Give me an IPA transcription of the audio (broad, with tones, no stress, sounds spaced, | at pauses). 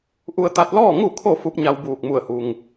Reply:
ʔ u˧ ə̯ t̪ a˧ t̚ l ɔː˥˨ ŋ u˧˩ kʰ o˧˩ f u˧˥ p̚ ɲ a˧ w b uː˧˩ k̚ m u˧˩ ə̯ h u˩ ŋ